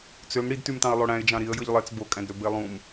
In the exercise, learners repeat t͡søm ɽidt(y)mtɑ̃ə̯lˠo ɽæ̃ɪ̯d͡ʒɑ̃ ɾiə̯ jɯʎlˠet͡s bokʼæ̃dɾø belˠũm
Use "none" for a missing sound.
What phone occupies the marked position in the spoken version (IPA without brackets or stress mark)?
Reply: y